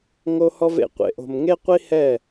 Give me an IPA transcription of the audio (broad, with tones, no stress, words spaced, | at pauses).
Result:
ŋo˦hɔ˦v ḛ˨qʷḛ˨ʔo̤˨m ŋe˦qʷi˦hɛ˦˨